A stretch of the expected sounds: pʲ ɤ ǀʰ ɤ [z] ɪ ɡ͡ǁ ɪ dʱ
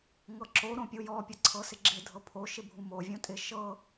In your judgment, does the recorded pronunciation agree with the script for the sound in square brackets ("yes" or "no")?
no